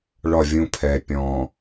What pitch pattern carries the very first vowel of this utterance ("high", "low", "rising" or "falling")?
falling